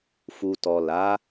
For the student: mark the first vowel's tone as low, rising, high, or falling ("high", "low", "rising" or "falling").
low